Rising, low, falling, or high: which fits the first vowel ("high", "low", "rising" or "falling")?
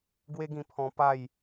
high